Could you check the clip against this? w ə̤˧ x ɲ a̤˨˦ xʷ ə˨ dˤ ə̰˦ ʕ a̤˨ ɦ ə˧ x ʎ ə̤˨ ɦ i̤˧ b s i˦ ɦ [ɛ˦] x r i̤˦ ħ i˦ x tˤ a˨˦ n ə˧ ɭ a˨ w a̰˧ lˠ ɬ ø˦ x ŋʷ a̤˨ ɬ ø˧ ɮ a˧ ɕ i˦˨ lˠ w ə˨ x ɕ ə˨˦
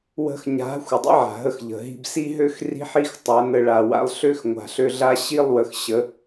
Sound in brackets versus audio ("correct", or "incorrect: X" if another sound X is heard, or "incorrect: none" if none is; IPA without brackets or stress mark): incorrect: ø˦